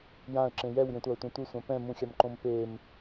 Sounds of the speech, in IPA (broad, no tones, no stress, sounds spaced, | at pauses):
j ã ə̯ ǁ ẽ j ɛ w j ẽ tʷ a ə̯ tʷ ẽ tʷ ɯ sʷ ã p ɛ̃ m ũ xʲ a m ǃ õ m p e m